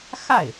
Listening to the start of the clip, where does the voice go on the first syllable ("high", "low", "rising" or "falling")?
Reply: falling